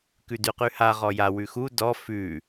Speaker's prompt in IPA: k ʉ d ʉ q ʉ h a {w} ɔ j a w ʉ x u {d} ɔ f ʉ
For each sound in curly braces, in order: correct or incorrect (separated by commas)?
incorrect, correct